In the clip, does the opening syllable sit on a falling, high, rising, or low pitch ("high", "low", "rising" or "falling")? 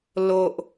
low